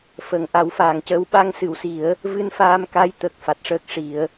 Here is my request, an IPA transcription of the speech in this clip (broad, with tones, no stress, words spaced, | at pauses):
fə˨˩ŋʔa˨˩˦wfaː˨˩˨ŋcəː˧˥w ɓa˧ŋsɨ˨˩˨wsi˨˩˦ə̯ | vɨ˧nfaː˧mka˧j t̪əː˨˩k̚fa˨˩t̚ʂəː˦˥k̚ʂi˨˩˦ə̯